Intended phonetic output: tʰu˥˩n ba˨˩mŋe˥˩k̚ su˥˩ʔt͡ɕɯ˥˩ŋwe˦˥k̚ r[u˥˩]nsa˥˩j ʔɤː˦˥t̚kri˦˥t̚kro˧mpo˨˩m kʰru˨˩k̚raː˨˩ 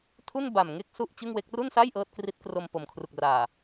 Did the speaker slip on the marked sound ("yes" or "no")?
no